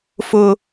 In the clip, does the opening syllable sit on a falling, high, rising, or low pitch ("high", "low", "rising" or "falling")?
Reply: low